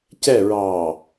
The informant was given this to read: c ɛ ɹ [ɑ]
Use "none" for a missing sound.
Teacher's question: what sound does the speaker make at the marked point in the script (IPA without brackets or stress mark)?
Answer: ɑ